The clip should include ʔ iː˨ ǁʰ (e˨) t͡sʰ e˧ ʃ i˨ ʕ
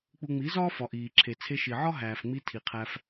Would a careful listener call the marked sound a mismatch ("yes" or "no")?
no